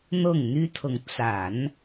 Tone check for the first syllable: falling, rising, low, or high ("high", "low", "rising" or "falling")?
falling